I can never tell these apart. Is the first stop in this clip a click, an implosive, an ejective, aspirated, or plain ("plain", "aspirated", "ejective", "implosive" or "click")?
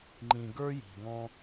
click